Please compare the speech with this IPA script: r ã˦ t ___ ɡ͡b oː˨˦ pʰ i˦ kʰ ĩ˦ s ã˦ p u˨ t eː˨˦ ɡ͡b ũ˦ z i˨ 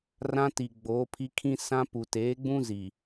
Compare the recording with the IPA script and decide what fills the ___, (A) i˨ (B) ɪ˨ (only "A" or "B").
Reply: A